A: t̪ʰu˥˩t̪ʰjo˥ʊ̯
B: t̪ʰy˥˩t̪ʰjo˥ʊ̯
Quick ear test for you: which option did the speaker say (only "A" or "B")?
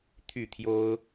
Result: B